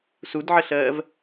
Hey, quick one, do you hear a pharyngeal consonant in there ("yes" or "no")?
yes